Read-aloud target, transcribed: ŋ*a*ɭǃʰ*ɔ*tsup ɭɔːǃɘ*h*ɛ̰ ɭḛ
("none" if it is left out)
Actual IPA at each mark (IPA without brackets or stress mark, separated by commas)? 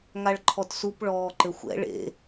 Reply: a, ɔ, xʷ